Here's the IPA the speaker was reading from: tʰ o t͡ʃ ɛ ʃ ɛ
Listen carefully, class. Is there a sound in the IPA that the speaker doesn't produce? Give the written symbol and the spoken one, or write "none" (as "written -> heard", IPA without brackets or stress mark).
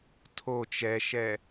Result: none